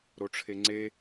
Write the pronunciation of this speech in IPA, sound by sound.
ɾ o ʈ͡ʂʰ e ŋ͡ǀ e

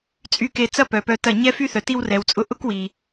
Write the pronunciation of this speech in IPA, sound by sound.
t͡sʼ y˧ k e˧ t͡s ɐ˦ p œ˨ p œ˧ t ɐ˦˨ ɲ ɛ˦ f y˦ θ œ˨ t i˦ w r ɛ˨ w t͡sʼ ʊ˦ ʔ ʊ˦ k w i˨

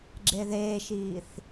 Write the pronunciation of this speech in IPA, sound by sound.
ɡ͡ǁ e ð eː ʃ iː θ

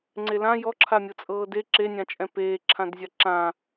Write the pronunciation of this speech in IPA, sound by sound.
ŋ͡ǀ e l ã j ɔ ǁʰ a mʲ ɤ t͡sʼ ɤː d e ǁ e nʲ ã t͡ʃʼ ɛ̃ p eː ǁʰ ã d zʲ a ǁ ã

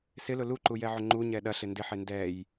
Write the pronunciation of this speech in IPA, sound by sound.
s ɪ l ʊ l u ǃ u j ɛ ʕ ʏ ŋ͡ǃ u ɲ ɛ ɗ ɐ ɬ ɪ n d ɪ ħ e n d ɛ j

